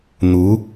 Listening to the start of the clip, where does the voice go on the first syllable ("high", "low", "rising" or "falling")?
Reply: rising